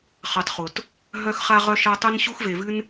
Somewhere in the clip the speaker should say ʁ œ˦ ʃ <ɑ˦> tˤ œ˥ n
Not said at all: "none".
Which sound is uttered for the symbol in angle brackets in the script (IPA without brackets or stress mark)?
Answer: a˦